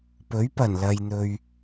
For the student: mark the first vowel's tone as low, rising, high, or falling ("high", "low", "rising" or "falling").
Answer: rising